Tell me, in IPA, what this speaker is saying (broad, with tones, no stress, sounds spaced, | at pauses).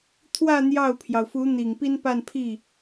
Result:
t̪ʰ w ä˥˧ n̪ j ɑ˥˩ ʊ̯ pʰ j ɑ˩ ʊ̯ f u˧˥ n̪ i˨˩ ŋ p i˥ n p a˥˧ n pʰ i˥˩